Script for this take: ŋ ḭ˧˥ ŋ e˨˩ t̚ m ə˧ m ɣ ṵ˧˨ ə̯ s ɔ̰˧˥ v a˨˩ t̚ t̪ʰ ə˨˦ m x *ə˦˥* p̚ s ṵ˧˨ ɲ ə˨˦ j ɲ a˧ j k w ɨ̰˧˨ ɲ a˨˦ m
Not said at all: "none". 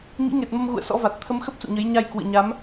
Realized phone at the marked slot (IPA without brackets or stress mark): ə˦˥